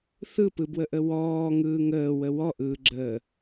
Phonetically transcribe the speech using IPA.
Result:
θ ɯ p ɯ b w ə ʔ ə w ɔː ŋ ɯː ŋ əː w ə w ɔ ʔ ɯː ɡ͡ǁ əː

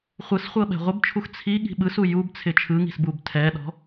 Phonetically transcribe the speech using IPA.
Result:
χʷ ɯ s χʷ ɤ ɓ ɛ̤ ʁʷ ɪ b t͡ʃʰ u x t͡sʰ i ɠ i̤ ɓ ɯ s u j u b t͡sʰ ɪ t͡ʃʰ ɯ ŋ i̤ s b u b tʰ ɛ ɗ ɔ̤

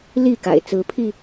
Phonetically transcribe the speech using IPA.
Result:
l i˥˨ k a̰˨˩ ɪ̯ t͡s ɹ̩˨˦ pʰ i˧

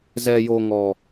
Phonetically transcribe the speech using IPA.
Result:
z ɛ˨ j o˨ ŋ ɔ˨

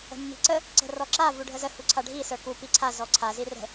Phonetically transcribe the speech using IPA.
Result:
ə̤ mː i̤ ǀ ə | ǀ ə̤ r ɔ ǁ a v u ɖʱ ə z ə h u ǀʰ a ɖʱ i s ə˞ k u p i ǀʰ a z ɔ ǀʰ a z i r ə̤

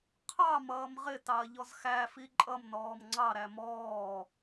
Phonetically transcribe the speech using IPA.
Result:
qʰ ɑ m ʌː m ʁ ɪ t ɑ ɐ̯ ʎ ɔ z x æ f i ǃʼ ʌ m n ɔː m ŋ͡ǀ ɑ ɾ æ m ɔː

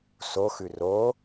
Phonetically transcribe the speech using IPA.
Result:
s o x ʉ r o

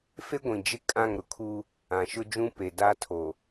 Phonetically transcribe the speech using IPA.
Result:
f e˦ ɡʷ ĩ˨ d͡ʒ ɪ˦ kʼ ã˦˨ ŋ ɾ ʊ˨ kʰ u˦ | ã˨ ʃ ʊ˦ d͡ʒ ũ˦ p e˨ d a˦ tʰ o˨

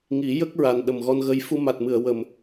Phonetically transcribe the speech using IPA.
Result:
ŋ i˨˩˦ j ə˦˥ k̚ ɹ a˨˩ n ɗ ə˨˩ m ɣ ɔ˧ n ɣ ə˧ j f u˧ m a˨˩ t̚ m ɨ˨˩˨ ə̯ w ə˨˩ m

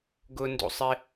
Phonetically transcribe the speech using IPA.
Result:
ɡ ʊ n d ṵ sˤ ɪ

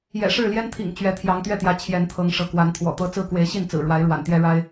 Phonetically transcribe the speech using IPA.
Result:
j ɛ̰˨˩ ʂ ɻ̩˥˨ l j ɛ˦ n t̪ʰ ḭ˨˩ ŋ t͡ɕ ɥ ɛ˨˦ t̪ʰ j ɑ˨˦ ŋ t̪ ɥ ɛ˥˨ t̪ j ä˨˦ t͡ɕʰ j ɛ˨˦ n t̪ʰ ɤ˨˦ ŋ ʂ ɤ˨˦ k w a˨˦ n t̪ʰ w ɔ̰˨˩ t̪ ɤ˦ t͡s ɹ̩˥˨ k w e˨˦ ɪ̯ ɕ i˥˨ n t͡s ɹ̩˨˩ ɻ w a˨˦ ɪ̯ ɻ w a̰˨˩ n t̪ j ɛ˦ ɻ a˦ ɪ̯

